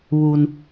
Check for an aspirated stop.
absent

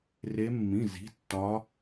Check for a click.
absent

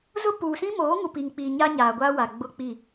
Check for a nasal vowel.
present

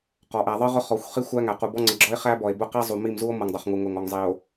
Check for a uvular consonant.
present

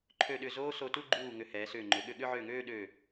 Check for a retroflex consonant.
absent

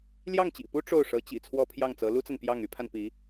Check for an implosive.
absent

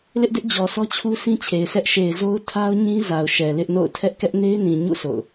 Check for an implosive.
absent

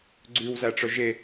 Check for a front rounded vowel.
present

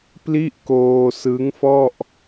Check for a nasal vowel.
absent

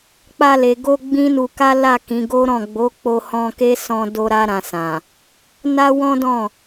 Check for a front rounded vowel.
absent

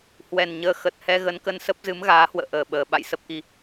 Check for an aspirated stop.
absent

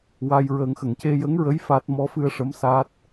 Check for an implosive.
absent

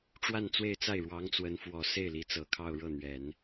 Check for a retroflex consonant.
present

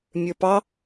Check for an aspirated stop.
absent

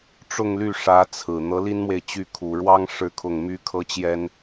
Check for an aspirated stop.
present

